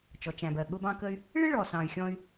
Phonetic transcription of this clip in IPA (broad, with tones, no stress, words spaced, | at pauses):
t͡ʃɔ˩t͡ʃæ̃˩bɜ˩ ɠʊ˧bɑ̃˧kə˧y̯ | ɭɪ˥ɭɔ˩sɑ̃˩y̯ xʲɔ̃˧y̯